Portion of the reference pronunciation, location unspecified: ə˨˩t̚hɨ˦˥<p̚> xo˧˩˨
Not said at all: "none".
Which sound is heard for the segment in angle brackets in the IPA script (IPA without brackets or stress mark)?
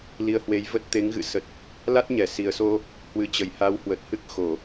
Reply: k̚